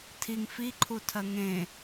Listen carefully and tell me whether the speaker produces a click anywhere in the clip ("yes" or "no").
yes